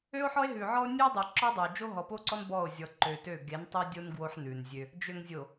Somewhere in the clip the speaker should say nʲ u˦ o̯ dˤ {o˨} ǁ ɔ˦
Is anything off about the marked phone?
no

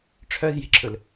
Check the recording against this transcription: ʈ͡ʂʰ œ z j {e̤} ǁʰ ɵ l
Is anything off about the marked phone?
no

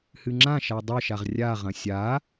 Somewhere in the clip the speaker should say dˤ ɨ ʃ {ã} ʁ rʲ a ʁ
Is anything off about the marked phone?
yes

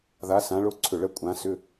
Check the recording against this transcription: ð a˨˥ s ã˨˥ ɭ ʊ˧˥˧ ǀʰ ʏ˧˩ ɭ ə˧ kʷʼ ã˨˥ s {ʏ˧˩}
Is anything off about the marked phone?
yes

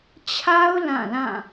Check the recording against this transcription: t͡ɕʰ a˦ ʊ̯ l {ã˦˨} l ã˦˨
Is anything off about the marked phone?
no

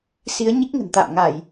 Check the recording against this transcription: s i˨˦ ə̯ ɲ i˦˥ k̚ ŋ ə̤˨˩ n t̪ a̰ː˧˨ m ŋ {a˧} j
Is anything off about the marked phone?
yes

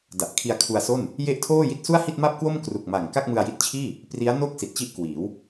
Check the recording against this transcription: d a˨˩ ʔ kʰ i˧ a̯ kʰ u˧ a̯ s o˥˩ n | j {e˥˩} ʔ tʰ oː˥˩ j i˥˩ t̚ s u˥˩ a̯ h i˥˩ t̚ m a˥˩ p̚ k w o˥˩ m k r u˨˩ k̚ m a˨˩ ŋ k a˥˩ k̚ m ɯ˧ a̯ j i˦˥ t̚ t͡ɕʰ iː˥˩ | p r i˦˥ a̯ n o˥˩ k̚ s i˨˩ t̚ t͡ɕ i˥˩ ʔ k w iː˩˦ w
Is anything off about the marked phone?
no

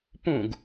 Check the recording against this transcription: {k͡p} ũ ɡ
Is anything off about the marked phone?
yes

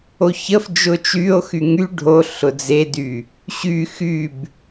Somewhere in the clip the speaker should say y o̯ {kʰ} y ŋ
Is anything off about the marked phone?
yes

